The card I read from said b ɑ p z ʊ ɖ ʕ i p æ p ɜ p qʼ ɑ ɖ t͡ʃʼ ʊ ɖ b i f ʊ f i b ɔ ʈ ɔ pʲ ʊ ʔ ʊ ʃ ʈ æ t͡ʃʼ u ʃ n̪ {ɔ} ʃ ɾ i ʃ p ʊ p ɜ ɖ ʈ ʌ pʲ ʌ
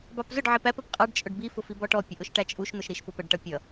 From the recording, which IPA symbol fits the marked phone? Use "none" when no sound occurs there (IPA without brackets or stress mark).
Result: ʊ